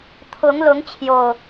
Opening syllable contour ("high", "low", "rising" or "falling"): rising